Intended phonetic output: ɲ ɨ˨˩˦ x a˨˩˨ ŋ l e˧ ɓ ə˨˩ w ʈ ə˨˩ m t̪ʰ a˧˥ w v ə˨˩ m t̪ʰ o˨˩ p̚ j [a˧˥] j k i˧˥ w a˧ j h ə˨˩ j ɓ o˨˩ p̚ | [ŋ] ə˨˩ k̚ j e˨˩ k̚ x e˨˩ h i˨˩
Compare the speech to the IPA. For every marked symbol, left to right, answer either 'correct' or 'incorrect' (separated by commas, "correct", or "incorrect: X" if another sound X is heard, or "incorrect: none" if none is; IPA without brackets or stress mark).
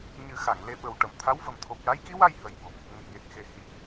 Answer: correct, correct